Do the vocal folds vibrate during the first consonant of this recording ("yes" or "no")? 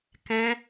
no